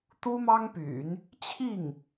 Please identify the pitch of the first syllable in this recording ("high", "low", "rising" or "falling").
high